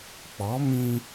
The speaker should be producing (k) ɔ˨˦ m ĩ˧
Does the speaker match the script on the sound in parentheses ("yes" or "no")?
no